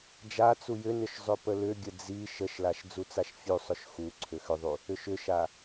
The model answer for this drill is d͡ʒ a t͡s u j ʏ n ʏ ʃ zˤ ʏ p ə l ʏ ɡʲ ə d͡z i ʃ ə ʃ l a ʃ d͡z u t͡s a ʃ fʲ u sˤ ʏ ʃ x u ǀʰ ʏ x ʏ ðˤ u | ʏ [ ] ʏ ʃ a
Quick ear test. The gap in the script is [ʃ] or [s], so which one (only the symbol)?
ʃ